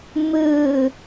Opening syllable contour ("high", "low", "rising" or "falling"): falling